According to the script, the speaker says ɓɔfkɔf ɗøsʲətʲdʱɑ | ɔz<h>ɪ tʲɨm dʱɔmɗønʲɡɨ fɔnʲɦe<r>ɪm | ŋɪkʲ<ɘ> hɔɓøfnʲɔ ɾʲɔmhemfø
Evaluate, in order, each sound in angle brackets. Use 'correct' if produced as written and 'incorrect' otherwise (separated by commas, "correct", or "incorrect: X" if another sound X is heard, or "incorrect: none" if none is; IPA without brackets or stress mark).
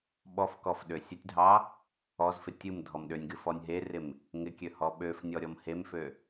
incorrect: f, correct, incorrect: ø